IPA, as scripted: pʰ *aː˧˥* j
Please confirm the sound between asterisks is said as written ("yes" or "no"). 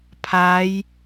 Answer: yes